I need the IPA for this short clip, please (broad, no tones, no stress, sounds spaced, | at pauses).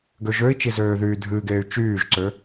ɡ ø ʒ ø i̯ t͡ʃ i z øː ð yː dʱ ɨː ɡ eː y̯ t͡ʃ yː ʒ ǀ ø